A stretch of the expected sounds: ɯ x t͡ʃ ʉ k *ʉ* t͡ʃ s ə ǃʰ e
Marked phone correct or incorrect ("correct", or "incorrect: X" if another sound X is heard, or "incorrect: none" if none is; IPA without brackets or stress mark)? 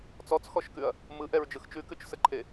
correct